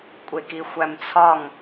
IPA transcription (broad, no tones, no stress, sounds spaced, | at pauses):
kʷʼ e k i xʷ æ m t͡sʰ ɒ ŋ